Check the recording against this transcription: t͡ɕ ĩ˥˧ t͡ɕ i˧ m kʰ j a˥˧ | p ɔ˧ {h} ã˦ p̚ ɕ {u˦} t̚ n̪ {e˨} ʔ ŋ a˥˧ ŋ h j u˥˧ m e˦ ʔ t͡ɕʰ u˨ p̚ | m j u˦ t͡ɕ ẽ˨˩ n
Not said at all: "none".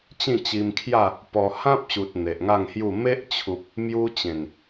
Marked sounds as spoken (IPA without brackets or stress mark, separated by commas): h, u˨, e˨